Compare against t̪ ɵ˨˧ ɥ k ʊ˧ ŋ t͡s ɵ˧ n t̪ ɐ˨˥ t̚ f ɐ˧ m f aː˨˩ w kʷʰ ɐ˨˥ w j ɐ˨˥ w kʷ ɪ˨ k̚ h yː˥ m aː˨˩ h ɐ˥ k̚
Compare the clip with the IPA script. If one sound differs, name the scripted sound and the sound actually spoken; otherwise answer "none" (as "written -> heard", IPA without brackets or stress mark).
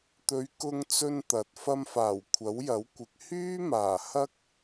none